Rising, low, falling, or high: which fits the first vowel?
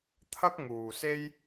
high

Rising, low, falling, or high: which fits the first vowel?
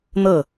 falling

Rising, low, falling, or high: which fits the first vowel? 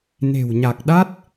low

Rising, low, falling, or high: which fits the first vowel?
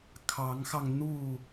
rising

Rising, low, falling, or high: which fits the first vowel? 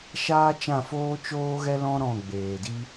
high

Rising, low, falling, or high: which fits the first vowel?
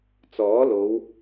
rising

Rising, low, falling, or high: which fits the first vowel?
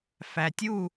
low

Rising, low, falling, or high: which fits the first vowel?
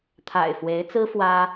low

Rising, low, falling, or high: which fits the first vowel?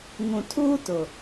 low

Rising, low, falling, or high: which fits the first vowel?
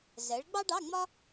rising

